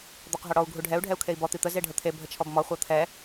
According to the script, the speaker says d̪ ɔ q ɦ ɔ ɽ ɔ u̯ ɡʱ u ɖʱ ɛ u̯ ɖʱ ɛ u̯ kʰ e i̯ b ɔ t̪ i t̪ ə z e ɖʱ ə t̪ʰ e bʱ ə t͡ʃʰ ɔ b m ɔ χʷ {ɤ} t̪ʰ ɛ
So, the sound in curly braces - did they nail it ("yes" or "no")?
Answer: yes